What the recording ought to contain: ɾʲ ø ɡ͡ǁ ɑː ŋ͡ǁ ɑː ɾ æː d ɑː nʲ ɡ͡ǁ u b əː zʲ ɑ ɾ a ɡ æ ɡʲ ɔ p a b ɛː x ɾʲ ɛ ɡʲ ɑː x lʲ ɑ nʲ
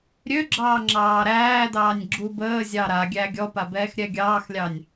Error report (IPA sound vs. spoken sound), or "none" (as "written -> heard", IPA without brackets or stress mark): ɡ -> ɡʲ